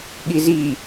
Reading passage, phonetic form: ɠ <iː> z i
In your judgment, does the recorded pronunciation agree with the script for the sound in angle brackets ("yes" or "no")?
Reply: no